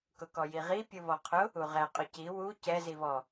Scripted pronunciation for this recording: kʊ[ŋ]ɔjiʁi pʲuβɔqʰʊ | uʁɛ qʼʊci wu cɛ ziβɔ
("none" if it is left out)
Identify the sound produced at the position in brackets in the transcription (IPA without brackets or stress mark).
k